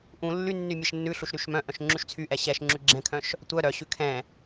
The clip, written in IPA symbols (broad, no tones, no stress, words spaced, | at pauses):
ʔũ lːynːy mʲɛʃnːʉɬuʃ ɾyʃmœ̃ʔœ̃ʃ ŋ͡ǁʉʃt͡sʰyʔɛ ɕɛʃ ŋ͡ǁʉɡ͡ǁɛ̃kʰœ̃ʃ | tʷœ ɾœɕʉ kʰɛ̃